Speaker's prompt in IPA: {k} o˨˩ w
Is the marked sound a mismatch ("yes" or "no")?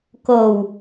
no